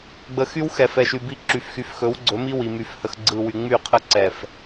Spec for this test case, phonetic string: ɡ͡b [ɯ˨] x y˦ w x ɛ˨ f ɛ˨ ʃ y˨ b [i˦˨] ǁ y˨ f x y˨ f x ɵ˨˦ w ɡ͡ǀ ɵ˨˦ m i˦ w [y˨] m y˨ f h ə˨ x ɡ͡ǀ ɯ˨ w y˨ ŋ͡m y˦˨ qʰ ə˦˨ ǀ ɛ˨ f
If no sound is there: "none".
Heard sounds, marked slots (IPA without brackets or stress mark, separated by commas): ə˨, i˦˨, i˨